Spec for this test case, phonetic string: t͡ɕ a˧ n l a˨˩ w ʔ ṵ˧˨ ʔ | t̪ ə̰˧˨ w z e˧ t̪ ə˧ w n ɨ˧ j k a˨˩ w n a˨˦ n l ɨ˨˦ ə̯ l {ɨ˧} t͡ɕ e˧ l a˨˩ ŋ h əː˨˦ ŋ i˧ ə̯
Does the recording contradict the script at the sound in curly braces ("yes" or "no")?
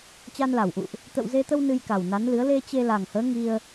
yes